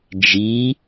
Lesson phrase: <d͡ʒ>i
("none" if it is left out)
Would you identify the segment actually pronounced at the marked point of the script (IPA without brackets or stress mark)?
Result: d͡ʒ